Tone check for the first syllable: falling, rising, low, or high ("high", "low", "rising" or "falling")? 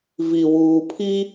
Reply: low